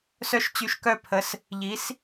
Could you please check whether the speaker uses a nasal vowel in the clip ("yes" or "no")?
no